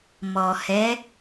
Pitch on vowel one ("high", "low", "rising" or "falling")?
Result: low